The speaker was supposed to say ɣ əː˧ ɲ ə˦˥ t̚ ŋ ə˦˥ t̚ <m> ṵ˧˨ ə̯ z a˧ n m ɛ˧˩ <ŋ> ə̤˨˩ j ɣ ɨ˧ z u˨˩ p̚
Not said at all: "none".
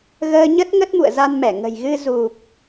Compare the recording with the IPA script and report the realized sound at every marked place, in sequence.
m, ŋ

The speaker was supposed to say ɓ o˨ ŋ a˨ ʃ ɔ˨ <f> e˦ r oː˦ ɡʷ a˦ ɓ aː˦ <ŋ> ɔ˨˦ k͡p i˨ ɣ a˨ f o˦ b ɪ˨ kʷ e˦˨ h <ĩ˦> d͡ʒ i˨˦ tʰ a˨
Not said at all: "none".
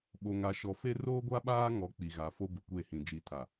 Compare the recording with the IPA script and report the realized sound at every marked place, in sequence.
f, ŋ, ĩ˨

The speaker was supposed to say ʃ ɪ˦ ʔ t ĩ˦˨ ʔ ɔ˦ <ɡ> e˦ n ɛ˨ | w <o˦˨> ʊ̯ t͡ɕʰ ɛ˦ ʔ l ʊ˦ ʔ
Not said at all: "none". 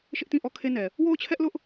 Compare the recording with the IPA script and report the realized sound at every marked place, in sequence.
kʰ, o˦˨

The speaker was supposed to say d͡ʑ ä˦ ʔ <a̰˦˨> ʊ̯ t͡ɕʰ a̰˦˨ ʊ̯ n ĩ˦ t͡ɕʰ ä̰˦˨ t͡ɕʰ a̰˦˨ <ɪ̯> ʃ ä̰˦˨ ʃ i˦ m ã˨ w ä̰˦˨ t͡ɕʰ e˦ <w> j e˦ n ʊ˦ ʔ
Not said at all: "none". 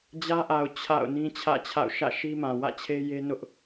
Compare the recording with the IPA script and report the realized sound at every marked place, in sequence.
a˨, ʊ̯, none

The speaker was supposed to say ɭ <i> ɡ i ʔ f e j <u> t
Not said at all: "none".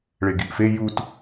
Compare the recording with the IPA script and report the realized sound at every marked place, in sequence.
e, u

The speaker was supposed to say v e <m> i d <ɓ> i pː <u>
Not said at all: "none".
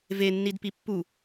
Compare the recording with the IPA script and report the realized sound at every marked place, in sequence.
nː, p, u

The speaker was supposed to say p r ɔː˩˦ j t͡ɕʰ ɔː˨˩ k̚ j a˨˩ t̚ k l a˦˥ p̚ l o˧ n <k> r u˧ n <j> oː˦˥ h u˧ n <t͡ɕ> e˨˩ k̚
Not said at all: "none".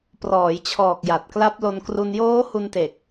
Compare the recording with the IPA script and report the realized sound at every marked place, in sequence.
k, j, t

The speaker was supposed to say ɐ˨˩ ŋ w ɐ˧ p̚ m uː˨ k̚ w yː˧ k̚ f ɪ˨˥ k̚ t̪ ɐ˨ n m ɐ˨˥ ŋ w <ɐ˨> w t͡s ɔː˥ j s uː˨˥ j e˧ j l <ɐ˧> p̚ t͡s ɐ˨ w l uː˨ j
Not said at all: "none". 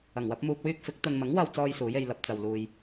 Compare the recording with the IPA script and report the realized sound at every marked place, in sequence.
ɐ˧, ɐ˧

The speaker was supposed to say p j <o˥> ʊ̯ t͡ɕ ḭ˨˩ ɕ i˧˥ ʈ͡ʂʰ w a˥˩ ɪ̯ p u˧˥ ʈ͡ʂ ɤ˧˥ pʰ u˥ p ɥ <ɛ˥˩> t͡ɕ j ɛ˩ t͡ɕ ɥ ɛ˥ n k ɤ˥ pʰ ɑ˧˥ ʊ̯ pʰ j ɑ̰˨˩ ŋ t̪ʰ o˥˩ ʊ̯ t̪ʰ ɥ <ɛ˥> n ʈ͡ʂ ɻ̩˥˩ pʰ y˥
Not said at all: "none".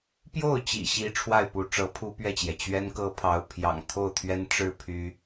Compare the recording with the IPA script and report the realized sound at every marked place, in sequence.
o˥˩, ɛ˥˩, ɛ˥

